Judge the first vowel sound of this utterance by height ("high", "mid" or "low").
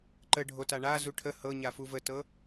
mid